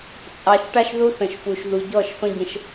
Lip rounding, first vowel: unrounded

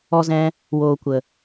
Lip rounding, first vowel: rounded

